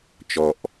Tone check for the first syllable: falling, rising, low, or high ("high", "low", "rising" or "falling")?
low